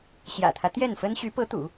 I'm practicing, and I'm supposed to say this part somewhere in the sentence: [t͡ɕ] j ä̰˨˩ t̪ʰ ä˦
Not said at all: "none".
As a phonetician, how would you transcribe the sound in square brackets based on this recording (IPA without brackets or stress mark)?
ɕ